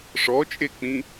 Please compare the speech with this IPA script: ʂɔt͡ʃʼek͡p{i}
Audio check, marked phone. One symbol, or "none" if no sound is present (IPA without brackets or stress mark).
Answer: ĩ